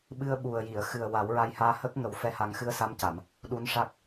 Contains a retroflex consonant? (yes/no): yes